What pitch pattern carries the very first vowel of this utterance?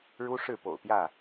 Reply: high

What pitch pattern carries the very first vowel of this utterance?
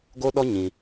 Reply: high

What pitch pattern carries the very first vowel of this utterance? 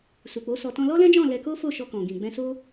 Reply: low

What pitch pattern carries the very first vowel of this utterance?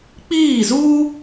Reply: falling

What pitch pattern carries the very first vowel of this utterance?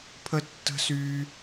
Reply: high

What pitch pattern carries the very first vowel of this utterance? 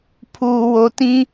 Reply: low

